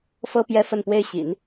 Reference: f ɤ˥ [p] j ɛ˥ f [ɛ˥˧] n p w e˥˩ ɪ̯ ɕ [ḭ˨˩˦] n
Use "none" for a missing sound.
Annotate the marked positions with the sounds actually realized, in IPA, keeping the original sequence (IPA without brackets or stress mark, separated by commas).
p, ə˥˧, ḭ˨˩˦